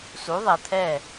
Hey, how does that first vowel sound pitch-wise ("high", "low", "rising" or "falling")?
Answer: rising